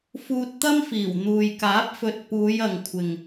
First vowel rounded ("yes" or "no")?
yes